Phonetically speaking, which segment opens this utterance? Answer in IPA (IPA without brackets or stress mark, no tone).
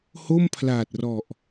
h